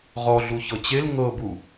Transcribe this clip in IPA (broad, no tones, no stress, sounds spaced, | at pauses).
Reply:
ʁ ɔ ɮ u ç ɤ t͡ɕ e l ŋ ɤ b u